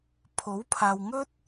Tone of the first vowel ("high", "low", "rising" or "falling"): rising